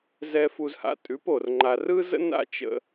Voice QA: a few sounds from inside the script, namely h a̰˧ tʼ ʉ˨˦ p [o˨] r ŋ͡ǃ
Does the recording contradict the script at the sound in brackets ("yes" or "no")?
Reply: no